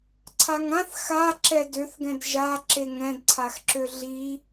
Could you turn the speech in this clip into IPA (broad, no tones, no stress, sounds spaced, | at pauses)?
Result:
ǀʰ a ŋ ã θ x a ǁ ɛ d ø θ ɡ ɛ̃ d ʒ a ǁ e ŋ ɛ̃ d ǀʰ a x ǁ ø ɮ i